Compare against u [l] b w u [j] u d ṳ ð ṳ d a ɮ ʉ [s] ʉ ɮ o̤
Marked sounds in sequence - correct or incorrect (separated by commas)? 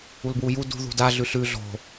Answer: correct, correct, incorrect